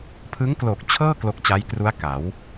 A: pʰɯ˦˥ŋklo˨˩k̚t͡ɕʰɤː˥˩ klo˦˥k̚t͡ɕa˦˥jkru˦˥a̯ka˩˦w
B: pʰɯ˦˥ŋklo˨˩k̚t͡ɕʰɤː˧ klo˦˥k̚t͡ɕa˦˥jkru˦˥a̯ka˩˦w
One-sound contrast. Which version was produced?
A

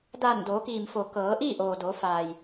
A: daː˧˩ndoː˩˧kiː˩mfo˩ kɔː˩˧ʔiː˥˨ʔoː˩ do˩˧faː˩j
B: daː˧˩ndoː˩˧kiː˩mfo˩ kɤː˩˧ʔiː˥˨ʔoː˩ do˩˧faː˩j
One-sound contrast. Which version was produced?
B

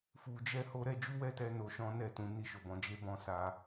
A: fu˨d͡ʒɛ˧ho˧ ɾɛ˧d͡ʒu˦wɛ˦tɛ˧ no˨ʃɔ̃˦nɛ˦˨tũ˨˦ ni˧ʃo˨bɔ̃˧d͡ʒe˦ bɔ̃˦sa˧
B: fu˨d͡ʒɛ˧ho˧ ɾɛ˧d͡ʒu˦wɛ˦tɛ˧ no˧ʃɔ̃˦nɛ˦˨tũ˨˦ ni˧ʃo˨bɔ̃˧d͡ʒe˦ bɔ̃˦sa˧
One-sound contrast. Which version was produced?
B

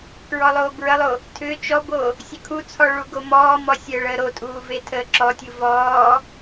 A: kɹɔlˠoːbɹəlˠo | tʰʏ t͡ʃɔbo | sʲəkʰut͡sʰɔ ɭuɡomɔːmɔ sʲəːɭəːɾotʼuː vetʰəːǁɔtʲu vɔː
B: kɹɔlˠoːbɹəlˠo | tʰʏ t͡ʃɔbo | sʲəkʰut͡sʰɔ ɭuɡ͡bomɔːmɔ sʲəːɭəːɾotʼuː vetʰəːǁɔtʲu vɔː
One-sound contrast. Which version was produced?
A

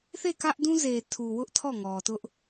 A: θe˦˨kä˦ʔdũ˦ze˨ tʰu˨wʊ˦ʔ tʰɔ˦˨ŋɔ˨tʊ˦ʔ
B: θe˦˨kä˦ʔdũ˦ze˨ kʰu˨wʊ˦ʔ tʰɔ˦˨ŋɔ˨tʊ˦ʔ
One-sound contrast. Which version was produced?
A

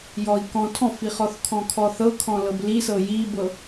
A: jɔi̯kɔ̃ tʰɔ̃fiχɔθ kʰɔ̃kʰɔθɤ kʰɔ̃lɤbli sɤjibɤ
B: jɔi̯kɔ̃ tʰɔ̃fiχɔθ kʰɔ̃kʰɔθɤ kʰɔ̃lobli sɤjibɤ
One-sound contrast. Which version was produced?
A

